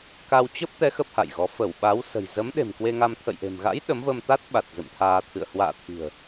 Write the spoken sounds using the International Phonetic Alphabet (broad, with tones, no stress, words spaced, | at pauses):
ka˧w t͡ɕəː˦˥p̚t̪ɛ˨˦ xə˦˥p̚ha̰˧˨jɣɔ˨˦ fə˧˩wɓa˨˦wsə̤˨˩j zə˨˦mɗe̤˨˩m kwe˧ŋa˧m t̪ʰə̰˧˨jʔe̤˨˩mɣa̰˧˥j ɗə˨˦mvəː˧mt̪a˦˥t̚ɓa˨˩t̚ zɨ̰˧˨mt̪ʰaː˧t̪ʰɨ̰˧˨ə̯ hwa̰ː˧˨t̪ʰi̤˨˩ə̯